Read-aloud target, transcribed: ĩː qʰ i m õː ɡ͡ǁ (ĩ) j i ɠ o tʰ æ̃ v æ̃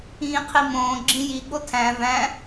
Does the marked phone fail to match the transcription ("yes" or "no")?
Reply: no